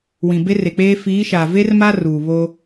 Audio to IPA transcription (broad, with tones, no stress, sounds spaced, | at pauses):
w ĩ˨ b e˦ r e˨ k͡p eː˦ f iː˨˦ ʃ aː˨ v e˦ r m a˦ r uː˨ β o˦